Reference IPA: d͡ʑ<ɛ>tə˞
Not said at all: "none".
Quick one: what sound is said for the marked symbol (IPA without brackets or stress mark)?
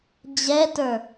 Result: ɛ